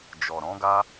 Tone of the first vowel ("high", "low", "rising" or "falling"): low